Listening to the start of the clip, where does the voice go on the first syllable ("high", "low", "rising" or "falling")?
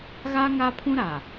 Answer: high